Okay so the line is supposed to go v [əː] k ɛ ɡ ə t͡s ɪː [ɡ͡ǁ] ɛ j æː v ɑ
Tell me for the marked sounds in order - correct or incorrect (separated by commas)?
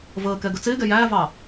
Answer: correct, incorrect